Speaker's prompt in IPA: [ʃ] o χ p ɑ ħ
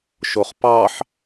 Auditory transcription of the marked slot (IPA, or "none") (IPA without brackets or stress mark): ʃ